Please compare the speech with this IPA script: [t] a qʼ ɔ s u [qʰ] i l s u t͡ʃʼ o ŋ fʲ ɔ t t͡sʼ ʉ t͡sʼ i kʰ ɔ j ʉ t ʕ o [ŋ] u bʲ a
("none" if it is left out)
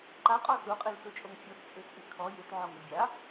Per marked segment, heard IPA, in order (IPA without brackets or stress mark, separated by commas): ǃ, qʼ, ŋ